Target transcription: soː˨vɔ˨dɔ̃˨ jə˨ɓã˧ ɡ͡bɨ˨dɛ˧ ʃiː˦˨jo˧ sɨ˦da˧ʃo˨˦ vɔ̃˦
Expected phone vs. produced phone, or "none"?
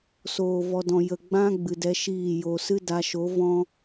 ɓ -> ɡ͡b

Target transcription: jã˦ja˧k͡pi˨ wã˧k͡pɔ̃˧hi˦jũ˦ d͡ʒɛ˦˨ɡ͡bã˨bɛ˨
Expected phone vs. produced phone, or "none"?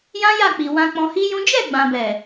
a˧ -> a˦˨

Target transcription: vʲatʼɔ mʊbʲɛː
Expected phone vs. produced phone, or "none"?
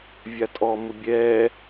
none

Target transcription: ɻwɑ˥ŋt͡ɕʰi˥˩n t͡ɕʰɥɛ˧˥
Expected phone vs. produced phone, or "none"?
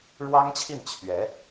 none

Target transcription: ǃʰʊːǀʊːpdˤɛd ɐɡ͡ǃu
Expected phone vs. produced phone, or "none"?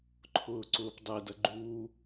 none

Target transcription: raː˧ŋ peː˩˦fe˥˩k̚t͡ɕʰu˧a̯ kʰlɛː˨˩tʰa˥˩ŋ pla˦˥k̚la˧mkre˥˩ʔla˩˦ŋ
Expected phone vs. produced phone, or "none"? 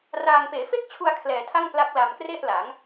none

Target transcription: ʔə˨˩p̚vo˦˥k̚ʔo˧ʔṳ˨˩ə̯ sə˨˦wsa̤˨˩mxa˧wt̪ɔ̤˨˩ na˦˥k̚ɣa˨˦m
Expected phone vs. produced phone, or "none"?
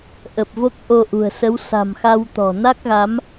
none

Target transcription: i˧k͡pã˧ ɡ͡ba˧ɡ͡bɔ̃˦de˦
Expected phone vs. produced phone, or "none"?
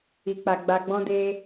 ã˧ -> a˧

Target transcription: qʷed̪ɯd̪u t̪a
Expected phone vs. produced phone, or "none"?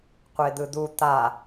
none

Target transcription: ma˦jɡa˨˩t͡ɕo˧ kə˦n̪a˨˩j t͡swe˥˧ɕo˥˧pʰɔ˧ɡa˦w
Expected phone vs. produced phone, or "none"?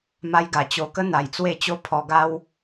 ɕ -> t͡ɕ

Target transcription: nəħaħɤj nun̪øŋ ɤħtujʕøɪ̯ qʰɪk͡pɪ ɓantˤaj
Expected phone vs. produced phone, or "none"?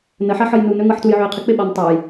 none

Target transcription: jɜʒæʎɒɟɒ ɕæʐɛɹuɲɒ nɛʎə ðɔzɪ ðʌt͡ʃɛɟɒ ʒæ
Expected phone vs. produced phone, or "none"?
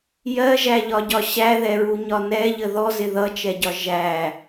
ʐ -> ð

